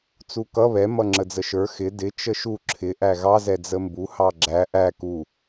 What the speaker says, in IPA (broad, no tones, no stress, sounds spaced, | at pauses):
t͡s u k ʌ β ɛ m ʌ ŋ͡ǁ ə d͡z ə ʃ ə˞ x ɪ d ɪ t͡ʃ ə ʃ u ǁʰ ɪ ʔ æ ɣ ɑ z ɛ d͡z ə m b u h ɑ ɡ͡ǁ æ ʔ æ k u